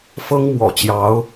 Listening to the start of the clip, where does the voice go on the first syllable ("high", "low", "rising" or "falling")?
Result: high